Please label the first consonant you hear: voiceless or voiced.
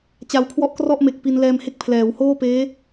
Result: voiceless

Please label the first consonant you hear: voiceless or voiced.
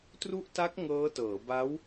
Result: voiceless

